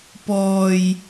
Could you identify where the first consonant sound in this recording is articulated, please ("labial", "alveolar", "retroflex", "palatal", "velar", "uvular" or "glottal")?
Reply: labial